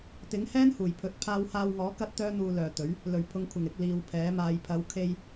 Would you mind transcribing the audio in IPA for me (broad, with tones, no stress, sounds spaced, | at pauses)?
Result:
t̪ ɪ˨˥ ŋ h ɛː˥ n h uː˨˩ j pʰ ɵ˨˥ t̚ pʰ aː˧ w h aː˧ w ŋ ɔː˨˥ k ɐ˧ t̚ t̪ œː˥ n̪ uː˧ l œː˨ t̪ ɵ˨˥ ɥ | l ɵ˨˩ ɥ pʰ ʊ˨˧ ŋ kʷʰ ɪ˨˩ ŋ ɪ˨ k̚ l iː˨˧ w pʰ ɛː˨˥ m aː˨˧ j pʰ ɐ˨˧ w kʰ e˧ j